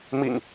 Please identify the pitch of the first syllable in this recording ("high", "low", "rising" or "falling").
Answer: low